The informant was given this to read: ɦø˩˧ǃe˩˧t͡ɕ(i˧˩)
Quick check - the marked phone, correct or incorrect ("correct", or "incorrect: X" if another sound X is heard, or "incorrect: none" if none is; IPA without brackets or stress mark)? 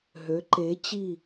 correct